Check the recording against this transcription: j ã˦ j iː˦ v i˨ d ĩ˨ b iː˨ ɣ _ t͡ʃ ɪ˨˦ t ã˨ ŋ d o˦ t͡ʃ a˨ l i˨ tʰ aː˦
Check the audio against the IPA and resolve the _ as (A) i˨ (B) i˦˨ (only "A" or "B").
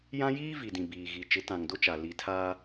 A